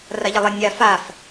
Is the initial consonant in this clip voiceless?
no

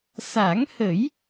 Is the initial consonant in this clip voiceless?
yes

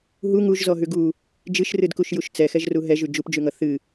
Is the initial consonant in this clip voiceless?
no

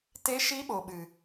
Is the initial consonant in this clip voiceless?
yes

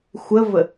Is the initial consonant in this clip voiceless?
yes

